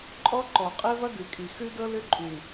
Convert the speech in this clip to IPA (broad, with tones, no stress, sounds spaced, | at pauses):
ǃʼ ɔ˦ ǃ ɔ˨ qʼ ɛ˦ v ɐ˦ ɡ ʉ˨ kʼ i˨ x ʉ˦ d ɤ˦ l ʏ˦ ǃʼ ʉ˨